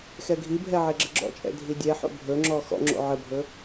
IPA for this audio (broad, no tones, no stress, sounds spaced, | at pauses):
x ɛ ɡʱ i bʱ ɛ ʕ e ɡ͡ǁ ə ɡ͡ǁ ɔ̰ t͡ʃʼ ɛ̰ dʱ i dʲ ɛ ħ o̰ bʱ ɵ ŋ͡ǁ ɔ x ɔ̰ ŋ͡ǁ o̰ ʕ ə bʱ ɵ